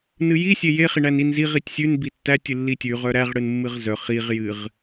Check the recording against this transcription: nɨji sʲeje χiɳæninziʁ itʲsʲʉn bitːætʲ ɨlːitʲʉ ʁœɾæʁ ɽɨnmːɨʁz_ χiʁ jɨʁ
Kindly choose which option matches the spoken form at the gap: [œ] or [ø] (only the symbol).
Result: œ